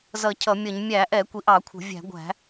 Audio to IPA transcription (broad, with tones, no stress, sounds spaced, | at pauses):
z ʌ˧˩˧ cʰ ʌ˧˩˧ mʲ ʌ˧˩˧ ɲ mʲ æ˧˩˧ ʔ ɛ˧˩˧ kʷ i˨˦ ʔ ɑ˧˩˧ kʷʰ ə̤˧˩˧ vʲ æ̤˧˩˧ ɡʷ æ̤˧˩˧